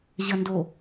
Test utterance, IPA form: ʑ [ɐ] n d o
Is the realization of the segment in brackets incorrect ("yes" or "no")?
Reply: no